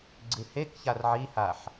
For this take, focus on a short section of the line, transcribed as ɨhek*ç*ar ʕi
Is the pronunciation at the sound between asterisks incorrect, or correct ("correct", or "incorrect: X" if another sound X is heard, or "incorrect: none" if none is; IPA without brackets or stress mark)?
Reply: correct